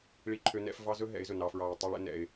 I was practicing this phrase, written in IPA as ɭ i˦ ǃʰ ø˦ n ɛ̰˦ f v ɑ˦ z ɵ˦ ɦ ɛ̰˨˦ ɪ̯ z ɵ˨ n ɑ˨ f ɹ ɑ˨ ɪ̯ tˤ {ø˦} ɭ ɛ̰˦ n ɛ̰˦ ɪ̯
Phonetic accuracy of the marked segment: incorrect: u˦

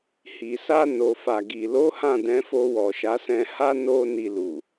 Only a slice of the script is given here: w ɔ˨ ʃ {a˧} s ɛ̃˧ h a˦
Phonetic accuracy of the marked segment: incorrect: a˨˦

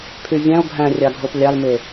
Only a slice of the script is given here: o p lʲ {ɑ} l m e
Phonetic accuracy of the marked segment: correct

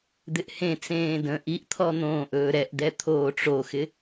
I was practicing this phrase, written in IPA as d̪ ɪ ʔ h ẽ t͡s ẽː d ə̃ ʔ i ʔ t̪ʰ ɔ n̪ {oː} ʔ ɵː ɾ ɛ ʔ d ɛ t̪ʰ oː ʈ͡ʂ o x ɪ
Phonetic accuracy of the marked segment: incorrect: õː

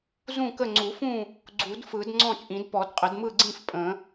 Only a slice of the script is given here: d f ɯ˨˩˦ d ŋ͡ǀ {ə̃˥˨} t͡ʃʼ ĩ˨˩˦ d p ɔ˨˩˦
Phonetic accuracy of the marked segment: incorrect: ɔ̃˥˨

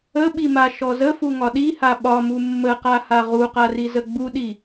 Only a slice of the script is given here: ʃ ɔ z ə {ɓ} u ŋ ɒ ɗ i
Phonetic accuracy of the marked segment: incorrect: f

